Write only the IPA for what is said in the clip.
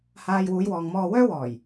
h aː˨ j w uː˨˧ j w ɔː˨ ŋ m ɔː˧ w œː˥ w ɔː˨˩ j

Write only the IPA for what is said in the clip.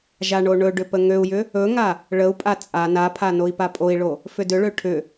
ʒ a ɳ o ɳ ɵ ɖ ʏ p ə ŋ ø u̯ j ʏ | ɵ ŋ a | ɭ ə u̯ pʼ a t͡sʼ a n a pʰ a n o i̯ p a pʼ o i̯ ɭ o | f ʏ d ʏ ɭ ø ʈʰ ʏ

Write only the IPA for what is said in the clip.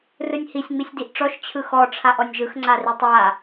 r ɯ nʲ h i sʲ ŋ͡m i sʲ d i ʔ ʈ͡ʂ ɔ ʃ t͡ɕʰ ɯ x ɔ ʈ͡ʂʰ a ʔ ɔ nʲ ʒ ɯ x ŋ͡ǀ a r i tˤ a

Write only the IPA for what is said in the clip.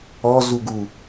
ɔ z u ɡ u

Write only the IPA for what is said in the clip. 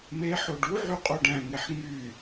m e ħ o ɖ u ʕ y qʼ o ɖ æ̃ ŋ e ħ ŋ y

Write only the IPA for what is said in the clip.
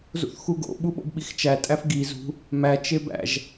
z ṵ θ x u ɡ o̰ ɓ u ɓ o̰ b ɓ i x t͡ʃ æ tʼ æ f ɡ i z ṳ | m æ t͡ʃ e b æ̰ ʒ

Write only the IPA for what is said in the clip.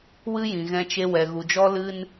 w ɨ˦ j ĩ˨ ɣ ɛ̃˧ t͡ʃ e˧ w ɛ˨ ɣ u˨ d͡ʒ ɔ˦ l ɨ˧ n

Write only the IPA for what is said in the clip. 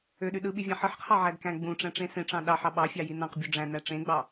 ø ɗ y ɗ ɯ ɓ i vʲ ɑ̃ ħ ɯ ħ qʰ ɑ ʕ æ d k æ̃ ɡ͡b ũ ʈ͡ʂ æ̃ ʈ͡ʂ ẽ s ẽ ʈ͡ʂ ɑ̃ ɗ ɑ ħ ɑ ɓ ɑ fʲ ɑ j i n ɑ̃ q bʲ u ɖ͡ʐ æ̃ n æ ʈ͡ʂ ẽ ɡ͡b ɑ

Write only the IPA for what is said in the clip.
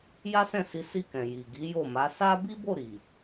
j a˦ s ɛ̃˦˨ s i˨˦ s i˦˨ k ɛ̃˨ j i˨ ɡ i˨˦ j o˦˨ m a˨˦ s a˦ b i˦ b o˦˨ ɾ i˨

